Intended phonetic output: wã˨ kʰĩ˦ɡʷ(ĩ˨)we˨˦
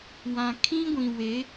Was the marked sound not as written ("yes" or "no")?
no